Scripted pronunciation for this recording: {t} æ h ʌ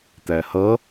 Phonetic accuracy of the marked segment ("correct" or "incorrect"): correct